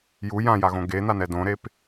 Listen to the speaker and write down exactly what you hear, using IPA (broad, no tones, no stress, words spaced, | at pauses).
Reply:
ju jãjaɣõ ɡen̪anɛ dõɾep